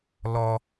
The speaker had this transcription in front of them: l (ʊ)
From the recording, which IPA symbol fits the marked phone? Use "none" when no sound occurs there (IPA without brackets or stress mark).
ɔ